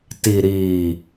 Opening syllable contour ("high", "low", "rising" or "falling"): low